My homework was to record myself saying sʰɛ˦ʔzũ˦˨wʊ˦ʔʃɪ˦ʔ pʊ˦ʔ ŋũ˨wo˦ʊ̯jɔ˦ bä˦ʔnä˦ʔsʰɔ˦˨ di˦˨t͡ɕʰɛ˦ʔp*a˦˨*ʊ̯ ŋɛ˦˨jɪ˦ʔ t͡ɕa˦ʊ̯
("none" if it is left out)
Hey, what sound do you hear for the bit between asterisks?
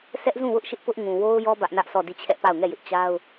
a˦˨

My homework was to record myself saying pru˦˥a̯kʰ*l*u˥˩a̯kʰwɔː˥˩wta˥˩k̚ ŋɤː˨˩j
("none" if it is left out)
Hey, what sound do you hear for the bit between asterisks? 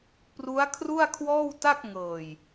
r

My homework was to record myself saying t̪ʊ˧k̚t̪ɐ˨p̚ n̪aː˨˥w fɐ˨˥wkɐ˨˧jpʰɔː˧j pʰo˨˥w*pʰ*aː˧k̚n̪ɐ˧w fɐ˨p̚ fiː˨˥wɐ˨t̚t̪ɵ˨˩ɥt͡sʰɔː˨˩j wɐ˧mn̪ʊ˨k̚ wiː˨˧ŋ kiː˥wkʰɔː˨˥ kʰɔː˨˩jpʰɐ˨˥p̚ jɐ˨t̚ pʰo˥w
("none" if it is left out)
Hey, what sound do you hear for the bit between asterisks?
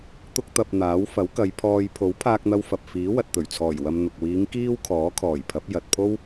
pʰ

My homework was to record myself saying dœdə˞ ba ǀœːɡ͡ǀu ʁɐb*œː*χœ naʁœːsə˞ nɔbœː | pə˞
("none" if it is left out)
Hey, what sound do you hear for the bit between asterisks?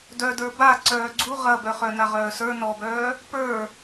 œ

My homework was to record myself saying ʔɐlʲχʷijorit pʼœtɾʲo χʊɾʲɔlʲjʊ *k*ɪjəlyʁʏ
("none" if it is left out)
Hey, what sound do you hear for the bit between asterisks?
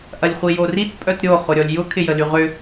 kʰ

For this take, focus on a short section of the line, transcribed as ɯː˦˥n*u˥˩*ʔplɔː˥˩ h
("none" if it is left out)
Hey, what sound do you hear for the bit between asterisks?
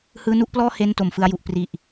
u˥˩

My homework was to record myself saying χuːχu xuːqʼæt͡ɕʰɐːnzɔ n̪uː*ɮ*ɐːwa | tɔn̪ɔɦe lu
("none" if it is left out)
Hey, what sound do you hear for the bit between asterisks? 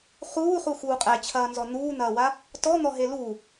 n̪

